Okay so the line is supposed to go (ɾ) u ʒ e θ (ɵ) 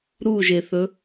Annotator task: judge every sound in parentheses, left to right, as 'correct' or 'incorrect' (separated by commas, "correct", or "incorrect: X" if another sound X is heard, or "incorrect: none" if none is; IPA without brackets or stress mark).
correct, correct